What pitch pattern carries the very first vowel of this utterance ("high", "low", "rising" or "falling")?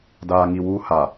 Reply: low